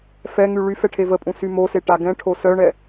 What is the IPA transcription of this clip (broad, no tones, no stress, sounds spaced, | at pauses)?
f ɛ ŋ y ɭ y f ɛ ʈʰ e v ə pʼ ũ s y m o s e ʈ a ɡ ɛ̃ ʈʰ o s œ ɳ ɛ